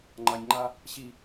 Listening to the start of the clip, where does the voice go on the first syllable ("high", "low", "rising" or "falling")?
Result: low